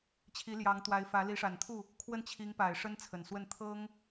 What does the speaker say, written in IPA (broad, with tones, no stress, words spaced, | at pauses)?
t͡ɕʰi˧˥ljɑ˧˥ŋt̪wa˧˥ɪ̯fä˧˥ li˧˥ʂa˨˩nt̪ʰu˥˩ | kʰwə˥˩n t͡ɕʰi˧˥ŋpa˨˩ɪ̯ ʂə˥nt͡sʰə˨˩nswə˥˩n t̪ʰɤ˥ŋ